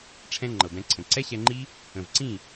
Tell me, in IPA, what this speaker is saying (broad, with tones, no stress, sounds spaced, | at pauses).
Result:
ʈ͡ʂʰ ɛ̃˦ ŋ͡ǃ ɤ˨ b ɛ̃˧ ǀʰ ə̃˨ ǀ ɛ˦ ɕ ɛ˧ ŋ͡ǃ i˦ | ə̃˨ v ǀ ĩ˦˨